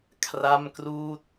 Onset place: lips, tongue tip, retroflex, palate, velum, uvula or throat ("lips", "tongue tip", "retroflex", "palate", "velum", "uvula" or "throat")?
velum